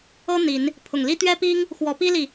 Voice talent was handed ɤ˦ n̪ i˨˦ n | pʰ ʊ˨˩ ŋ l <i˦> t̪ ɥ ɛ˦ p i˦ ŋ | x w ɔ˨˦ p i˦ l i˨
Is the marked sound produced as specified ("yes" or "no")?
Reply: yes